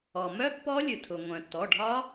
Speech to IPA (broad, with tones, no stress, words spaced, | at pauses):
ɔ˩mœ˦˥ pːɔ˦˥lʲɨ˩tʰʊ˩ ŋʷœ̃˩tːɔ˩˧˩ɖʱɒ˦˥